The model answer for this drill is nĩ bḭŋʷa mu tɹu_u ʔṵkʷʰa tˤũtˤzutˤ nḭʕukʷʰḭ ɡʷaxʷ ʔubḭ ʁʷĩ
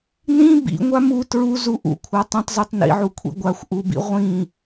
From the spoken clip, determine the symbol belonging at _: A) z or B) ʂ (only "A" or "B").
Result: A